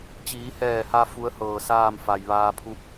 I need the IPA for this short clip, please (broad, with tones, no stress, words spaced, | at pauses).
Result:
t͡ɕiː˩˧hɛː˧˩ha˧ fu˧˥ə̯hɤː˧˩saː˥˨m fa˩jʋaː˧pʰu˧˥p̚